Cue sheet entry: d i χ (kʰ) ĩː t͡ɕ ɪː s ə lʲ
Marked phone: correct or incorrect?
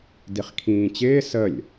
correct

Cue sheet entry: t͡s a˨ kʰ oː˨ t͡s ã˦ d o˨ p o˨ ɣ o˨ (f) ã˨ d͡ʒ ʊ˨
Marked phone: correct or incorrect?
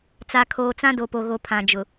incorrect: pʰ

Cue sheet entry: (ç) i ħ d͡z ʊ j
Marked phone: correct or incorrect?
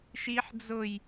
incorrect: ʃ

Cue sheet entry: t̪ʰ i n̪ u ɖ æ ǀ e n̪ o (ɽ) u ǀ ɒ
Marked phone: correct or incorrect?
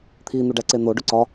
incorrect: ɖ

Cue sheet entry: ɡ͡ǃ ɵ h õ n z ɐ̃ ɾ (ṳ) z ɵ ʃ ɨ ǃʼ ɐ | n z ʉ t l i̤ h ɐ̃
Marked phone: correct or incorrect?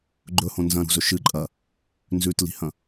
correct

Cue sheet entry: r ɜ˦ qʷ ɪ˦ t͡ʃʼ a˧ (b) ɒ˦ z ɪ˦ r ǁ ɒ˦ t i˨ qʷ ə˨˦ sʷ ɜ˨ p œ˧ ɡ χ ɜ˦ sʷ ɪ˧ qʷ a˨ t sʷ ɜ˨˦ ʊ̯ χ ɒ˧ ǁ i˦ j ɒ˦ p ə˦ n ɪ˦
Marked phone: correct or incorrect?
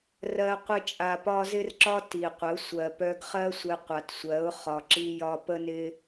incorrect: p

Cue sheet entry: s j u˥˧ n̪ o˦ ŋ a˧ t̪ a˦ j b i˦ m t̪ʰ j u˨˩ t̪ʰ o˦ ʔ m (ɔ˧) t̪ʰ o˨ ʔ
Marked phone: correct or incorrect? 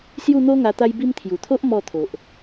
incorrect: ɔ˥˧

